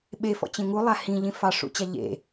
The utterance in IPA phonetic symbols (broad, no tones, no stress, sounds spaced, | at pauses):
ɓ e f ɔ̰ t͡ɕ ẽ ŋ u lˠ a h ĩ ʎ ĩ f ɑ ʂ ṵ t͡ɕ a ʎ ḛ